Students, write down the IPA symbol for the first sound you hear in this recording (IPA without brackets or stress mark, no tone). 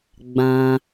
ɡ͡b